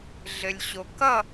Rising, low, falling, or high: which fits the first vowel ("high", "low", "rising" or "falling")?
low